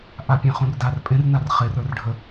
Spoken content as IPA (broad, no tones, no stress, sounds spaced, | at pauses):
ʔ a pʲ ẽ χ ũ r d a r pʼ ẽ r n a r χ e r ə˞ r ɖʱ ə